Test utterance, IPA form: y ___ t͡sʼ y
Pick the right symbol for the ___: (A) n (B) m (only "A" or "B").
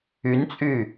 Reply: A